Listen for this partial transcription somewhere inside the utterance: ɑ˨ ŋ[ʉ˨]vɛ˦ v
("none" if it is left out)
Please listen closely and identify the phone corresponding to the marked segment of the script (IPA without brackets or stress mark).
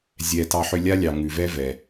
ʉ˨